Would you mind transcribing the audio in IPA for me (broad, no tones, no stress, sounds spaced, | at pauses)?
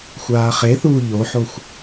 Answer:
xʷ aː χ e θ uː ʎ o ħ o xʷ